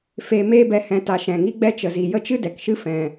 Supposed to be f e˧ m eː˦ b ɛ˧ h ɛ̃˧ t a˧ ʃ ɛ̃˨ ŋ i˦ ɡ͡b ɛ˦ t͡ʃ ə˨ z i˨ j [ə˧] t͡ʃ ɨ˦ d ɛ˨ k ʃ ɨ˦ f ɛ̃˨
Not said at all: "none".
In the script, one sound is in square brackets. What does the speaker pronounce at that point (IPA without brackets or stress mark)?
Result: ə˦